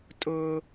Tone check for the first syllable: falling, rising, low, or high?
high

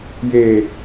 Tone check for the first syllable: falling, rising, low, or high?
low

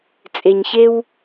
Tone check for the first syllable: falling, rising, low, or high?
low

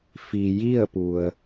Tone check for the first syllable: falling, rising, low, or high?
low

